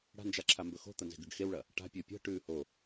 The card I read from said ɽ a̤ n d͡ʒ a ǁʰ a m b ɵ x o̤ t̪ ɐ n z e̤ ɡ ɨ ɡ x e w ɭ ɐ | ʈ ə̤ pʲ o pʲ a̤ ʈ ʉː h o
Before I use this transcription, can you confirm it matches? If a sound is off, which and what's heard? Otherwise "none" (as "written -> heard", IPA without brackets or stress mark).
ə̤ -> a̤